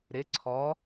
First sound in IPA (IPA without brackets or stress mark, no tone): ɾ